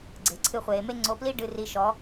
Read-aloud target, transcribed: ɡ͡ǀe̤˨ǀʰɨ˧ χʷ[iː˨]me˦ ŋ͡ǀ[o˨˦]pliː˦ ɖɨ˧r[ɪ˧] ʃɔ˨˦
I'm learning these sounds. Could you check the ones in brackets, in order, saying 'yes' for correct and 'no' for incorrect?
no, yes, no

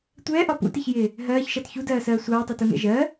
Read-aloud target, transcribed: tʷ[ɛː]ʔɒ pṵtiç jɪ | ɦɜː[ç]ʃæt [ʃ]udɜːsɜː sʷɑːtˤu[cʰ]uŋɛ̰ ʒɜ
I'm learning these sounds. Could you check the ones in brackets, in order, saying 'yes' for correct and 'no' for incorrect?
yes, yes, no, no

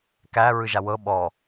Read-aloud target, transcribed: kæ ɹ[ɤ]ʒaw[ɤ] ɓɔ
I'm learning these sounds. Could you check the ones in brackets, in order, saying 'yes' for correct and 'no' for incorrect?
no, yes

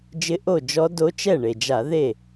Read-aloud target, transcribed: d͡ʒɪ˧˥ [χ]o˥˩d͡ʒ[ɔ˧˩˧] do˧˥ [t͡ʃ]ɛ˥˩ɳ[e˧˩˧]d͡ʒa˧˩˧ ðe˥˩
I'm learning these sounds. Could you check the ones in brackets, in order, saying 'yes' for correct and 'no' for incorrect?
no, no, yes, no

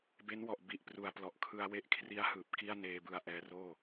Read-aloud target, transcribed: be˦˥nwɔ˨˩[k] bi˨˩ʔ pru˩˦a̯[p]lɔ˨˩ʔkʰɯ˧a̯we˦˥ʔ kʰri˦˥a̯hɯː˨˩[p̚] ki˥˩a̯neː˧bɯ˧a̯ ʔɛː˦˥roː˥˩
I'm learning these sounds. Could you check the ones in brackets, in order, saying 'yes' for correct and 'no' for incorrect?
no, yes, yes

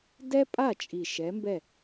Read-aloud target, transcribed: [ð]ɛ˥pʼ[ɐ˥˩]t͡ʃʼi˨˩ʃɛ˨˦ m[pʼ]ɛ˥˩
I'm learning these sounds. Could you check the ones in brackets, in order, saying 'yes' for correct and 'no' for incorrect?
no, no, no

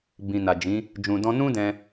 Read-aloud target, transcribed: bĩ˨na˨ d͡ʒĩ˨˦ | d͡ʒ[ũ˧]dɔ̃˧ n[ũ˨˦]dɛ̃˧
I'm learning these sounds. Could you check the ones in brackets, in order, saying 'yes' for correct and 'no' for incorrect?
no, no

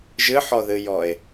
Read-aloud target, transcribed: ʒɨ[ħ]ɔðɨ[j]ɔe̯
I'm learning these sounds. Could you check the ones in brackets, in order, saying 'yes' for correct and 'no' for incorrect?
yes, yes

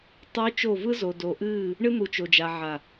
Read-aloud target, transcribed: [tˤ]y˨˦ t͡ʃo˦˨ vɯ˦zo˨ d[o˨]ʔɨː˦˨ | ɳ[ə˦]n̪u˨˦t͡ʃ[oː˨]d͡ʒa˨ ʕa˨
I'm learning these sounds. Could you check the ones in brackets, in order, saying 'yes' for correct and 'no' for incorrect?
yes, yes, no, no

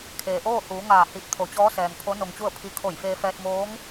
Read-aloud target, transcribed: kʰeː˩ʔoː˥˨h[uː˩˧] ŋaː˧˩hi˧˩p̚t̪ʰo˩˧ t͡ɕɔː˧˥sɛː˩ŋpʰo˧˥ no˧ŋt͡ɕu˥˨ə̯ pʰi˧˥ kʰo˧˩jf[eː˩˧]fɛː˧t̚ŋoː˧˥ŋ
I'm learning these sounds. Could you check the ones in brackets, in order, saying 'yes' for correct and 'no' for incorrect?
yes, no

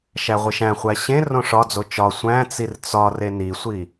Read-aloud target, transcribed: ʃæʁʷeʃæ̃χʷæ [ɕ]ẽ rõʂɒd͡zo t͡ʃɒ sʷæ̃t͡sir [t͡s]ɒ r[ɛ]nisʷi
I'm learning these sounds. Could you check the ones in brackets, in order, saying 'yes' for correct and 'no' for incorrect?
yes, yes, no

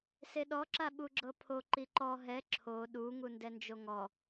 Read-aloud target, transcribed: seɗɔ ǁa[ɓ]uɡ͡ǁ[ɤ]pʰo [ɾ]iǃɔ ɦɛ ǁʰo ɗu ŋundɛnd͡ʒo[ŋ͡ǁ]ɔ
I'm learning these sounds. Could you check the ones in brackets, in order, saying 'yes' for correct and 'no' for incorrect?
yes, yes, no, no

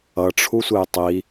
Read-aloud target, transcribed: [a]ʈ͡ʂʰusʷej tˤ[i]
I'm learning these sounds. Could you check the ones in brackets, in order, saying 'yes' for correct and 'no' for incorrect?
no, yes

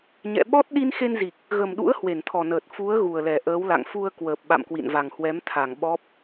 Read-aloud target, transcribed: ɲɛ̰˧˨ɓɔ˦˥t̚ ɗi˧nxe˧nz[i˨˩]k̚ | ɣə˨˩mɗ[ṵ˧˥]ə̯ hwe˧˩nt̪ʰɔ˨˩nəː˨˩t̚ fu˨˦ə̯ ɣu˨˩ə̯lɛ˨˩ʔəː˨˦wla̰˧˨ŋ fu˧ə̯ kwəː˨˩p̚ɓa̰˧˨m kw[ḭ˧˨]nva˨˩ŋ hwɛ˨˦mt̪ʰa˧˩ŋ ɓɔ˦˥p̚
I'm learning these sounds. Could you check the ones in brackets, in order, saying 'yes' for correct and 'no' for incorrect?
yes, yes, yes

